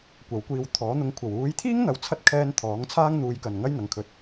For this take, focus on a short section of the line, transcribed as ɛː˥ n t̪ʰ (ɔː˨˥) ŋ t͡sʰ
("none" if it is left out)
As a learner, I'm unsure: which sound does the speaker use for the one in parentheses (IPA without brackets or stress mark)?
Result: ɔː˨˥